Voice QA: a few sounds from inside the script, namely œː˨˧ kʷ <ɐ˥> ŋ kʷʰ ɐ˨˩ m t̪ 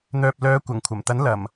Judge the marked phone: incorrect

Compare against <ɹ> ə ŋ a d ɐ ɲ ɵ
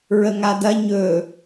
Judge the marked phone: correct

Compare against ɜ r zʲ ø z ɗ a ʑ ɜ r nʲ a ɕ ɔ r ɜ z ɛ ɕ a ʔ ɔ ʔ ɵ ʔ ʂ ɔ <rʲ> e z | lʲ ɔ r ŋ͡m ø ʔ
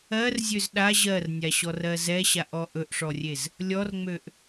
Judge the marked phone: correct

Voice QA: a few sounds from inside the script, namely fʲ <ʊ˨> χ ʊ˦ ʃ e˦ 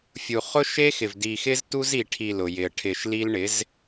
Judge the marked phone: incorrect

